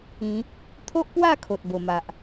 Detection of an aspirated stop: present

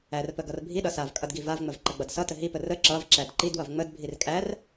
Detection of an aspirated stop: absent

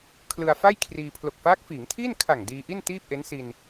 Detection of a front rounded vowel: absent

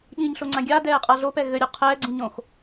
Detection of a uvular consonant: present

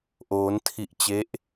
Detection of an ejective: absent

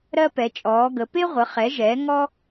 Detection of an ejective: present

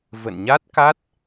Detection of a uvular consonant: absent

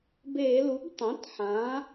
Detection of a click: absent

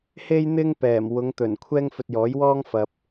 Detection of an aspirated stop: present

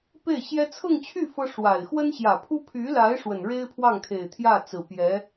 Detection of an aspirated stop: present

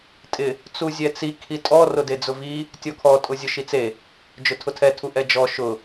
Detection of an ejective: present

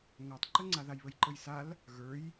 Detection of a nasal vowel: absent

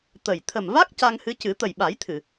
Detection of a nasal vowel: absent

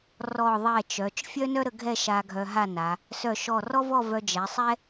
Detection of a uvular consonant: absent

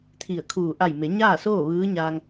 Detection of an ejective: absent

